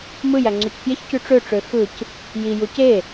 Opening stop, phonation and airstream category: click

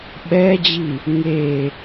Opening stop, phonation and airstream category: implosive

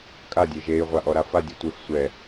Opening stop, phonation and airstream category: ejective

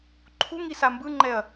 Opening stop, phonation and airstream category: click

